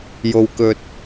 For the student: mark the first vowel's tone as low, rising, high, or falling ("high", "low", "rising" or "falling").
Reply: low